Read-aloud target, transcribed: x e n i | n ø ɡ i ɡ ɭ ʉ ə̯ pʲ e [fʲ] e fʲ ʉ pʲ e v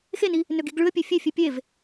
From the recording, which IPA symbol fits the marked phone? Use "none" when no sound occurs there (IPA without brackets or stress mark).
fʲ